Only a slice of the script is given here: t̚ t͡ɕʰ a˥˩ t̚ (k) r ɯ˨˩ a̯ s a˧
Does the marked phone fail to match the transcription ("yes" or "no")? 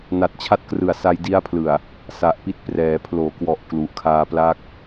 no